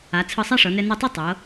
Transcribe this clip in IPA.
a˩˧ t͡sʰɯ˧˩sˤa˥˧ʂɤ˩˧nɛ˧ nɯ˧˩tˤe˥˧ tˤɤ˩˧

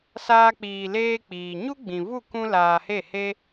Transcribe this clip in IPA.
saː˦k͡piː˧leː˦k͡piː˨ ɲu˦ɡ͡bĩ˨vu˦˨ kũ˦laː˧he˦˨he˦

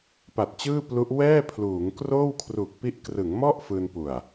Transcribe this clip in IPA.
pa˨˩t̚t͡ɕɯː˥˩plu˦˥ʔ wɛː˥˩ pʰluː˩˦ŋkroː˥˩wkʰru˨˩k̚pi˦˥ʔ krɯ˩˦ŋmɔ˥˩ʔ fɯː˧npu˨˩a̯

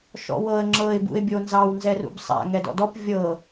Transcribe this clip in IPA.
ʃɔ̰wɤə̯ ŋ͡ǁɤɪ̯ bṵɪ̯bʲonzɑw nzɛrṵbsˤa̰ ŋɛdɔ̰dɔp vʲɤ

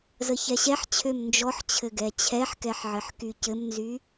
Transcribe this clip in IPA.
zəçɛɕɛħt͡ɕʰøm nd͡ʒɔħt͡ɕʰɘ ɡɛt͡ɕʰɛħkɛħ ʕɘħkycɘmnzy

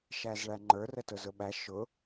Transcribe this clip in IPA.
ʃæzɭæŋ͡ǃə˞r ətʊzʊɓæ ʃʊ

